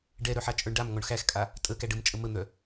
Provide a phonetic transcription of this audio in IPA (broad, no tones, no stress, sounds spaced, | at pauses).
ɖ ɛ ɾ œ ħ a t͡ʃʼ ə˞ ɳ ɖ a m ŋ ɔ ɳ x æ x kʼ a | tʼ ə k æ ɖ ə m t͡ʃʼ ə m ə n̪ œ